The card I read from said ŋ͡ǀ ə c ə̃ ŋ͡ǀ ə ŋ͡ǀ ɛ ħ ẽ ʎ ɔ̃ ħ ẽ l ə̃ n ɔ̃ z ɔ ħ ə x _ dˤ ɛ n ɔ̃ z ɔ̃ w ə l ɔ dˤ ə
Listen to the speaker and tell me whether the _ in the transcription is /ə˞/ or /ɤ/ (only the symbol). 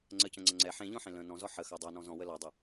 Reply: ɤ